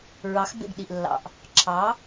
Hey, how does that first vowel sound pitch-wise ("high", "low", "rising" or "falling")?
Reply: rising